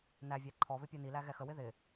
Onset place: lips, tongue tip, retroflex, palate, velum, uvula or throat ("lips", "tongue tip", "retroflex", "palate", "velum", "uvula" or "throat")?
tongue tip